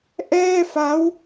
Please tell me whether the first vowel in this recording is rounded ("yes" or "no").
no